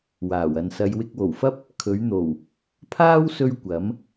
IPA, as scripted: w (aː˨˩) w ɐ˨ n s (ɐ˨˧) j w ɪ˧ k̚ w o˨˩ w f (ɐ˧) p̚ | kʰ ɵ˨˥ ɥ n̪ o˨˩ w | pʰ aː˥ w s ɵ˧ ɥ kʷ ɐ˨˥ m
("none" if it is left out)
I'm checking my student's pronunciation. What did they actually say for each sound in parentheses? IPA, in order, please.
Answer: aː˨˩, ɐ˨˧, ɐ˥

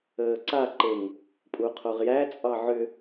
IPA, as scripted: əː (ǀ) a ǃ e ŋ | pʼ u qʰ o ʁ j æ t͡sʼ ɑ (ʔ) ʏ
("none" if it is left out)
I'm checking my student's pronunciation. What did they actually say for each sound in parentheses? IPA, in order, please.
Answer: ǀ, ʕ

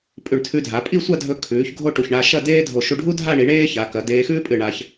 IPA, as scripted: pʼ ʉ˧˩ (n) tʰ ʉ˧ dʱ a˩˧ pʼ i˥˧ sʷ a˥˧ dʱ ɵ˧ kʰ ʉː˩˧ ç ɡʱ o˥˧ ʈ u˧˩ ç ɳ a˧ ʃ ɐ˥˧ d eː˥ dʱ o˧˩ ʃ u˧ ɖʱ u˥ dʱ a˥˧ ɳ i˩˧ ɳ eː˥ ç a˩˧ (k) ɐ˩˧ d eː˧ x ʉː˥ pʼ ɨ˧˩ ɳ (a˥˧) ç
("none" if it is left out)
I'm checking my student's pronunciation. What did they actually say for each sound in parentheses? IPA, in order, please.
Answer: ɳ, k, a˧

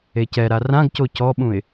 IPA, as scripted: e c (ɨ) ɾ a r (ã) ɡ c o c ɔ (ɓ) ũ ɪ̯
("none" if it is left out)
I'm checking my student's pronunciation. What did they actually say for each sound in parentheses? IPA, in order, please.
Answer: ɛ, ã, ɓ

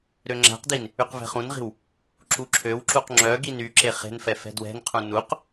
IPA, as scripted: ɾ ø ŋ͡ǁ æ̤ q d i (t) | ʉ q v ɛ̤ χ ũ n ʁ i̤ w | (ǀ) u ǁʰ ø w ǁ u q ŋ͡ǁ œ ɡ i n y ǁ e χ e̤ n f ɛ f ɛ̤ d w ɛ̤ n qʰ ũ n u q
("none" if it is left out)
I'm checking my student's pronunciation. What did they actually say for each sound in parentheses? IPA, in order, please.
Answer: n, ǁ

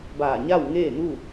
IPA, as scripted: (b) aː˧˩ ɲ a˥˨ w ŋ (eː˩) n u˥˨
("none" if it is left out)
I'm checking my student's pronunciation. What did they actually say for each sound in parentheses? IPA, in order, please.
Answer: b, eː˥˨

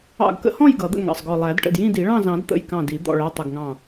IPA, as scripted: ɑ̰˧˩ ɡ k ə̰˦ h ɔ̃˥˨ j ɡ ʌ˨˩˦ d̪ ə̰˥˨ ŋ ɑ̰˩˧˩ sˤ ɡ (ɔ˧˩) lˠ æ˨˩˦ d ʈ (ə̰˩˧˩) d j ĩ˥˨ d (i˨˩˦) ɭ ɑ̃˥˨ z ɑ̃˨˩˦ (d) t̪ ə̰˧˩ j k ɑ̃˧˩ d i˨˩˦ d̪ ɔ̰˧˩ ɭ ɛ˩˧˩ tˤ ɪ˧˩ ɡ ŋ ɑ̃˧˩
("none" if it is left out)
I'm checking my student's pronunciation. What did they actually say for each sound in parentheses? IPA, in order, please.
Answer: ɔ˧˩, ə̰˧˩, i˨˩˦, d

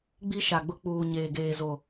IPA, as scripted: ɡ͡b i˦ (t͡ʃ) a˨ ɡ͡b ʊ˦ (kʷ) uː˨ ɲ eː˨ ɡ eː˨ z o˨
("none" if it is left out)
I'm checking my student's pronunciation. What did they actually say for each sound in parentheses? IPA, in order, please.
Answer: ʃ, k͡p

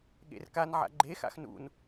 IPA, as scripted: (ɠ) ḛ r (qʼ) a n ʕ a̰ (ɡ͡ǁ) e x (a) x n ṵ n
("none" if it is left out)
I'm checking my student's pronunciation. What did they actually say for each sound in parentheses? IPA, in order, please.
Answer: ɠ, k, ɡ͡ǃ, a̰

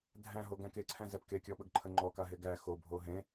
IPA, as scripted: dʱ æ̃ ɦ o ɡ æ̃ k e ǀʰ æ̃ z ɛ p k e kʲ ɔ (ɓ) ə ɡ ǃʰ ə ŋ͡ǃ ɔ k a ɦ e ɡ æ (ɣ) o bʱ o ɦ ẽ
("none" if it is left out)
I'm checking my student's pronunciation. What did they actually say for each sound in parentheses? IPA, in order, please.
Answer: ɓ, x

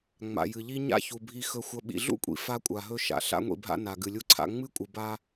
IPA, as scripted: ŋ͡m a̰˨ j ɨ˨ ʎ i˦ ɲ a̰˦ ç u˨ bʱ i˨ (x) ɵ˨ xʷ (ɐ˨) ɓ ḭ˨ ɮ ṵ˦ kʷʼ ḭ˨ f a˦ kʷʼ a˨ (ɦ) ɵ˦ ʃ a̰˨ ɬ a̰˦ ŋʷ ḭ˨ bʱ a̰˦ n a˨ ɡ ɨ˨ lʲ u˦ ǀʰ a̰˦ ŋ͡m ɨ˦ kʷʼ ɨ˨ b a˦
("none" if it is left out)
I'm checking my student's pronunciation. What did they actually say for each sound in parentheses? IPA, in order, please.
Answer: x, ɐ˨, ɦ

